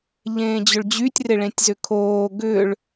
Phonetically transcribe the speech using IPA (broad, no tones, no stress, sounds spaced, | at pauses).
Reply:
ʎ ẽː d͡ʑ ʏ ɭ d͡ʑ y tʲ r ɪ ɭ ẽ tʲ z ʏ kʰ oː ɡ ʏ ɭ